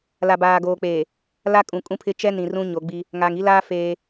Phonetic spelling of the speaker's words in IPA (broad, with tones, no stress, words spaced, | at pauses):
la˨baː˨ɡoː˨k͡peː˨ | la˦kʼũ˨ kʼũ˦pʰɪ˦ t͡ʃɛ˦nĩ˨ rũ˦ɲo˨˦ɡ͡bi˦ | ŋaː˨ŋi˦laː˦ feː˦